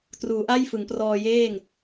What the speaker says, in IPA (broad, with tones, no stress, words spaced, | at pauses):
truː˩˦ʔa˥˩j fɯ˩˦ŋprɔː˧jeː˥˩ŋ